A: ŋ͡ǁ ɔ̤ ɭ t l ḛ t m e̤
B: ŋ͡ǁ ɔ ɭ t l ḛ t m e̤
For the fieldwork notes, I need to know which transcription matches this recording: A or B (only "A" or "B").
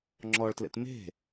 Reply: B